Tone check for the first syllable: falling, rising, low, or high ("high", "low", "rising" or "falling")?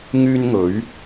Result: high